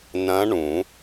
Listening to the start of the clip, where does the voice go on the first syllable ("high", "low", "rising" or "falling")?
rising